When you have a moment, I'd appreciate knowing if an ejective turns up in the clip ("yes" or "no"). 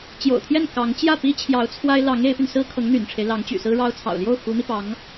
no